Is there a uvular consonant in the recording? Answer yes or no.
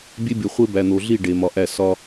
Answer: yes